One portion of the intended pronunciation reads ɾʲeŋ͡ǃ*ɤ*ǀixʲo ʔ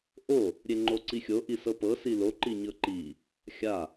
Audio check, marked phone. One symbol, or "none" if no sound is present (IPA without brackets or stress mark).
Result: o